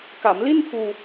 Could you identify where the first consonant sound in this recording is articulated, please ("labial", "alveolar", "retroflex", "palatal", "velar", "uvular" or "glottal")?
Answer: velar